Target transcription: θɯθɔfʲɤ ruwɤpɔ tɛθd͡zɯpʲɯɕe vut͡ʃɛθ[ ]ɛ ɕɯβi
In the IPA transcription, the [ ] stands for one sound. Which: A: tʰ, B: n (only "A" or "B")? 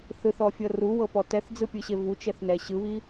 B